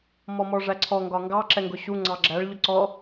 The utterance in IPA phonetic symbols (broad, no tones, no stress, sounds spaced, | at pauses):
m ɔ m ɔ ʐ æ ǀʰ ɔ ŋ ɡ ɒ ŋ ɡ ɑ ǁ ɛ ŋ ɡ ʊ ɕ u ŋ͡ǀ ɑ ɡ͡ǁ æ ɭ ʎ ʊ ǀ ɔ